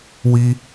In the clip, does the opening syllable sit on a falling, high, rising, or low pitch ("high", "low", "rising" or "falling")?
high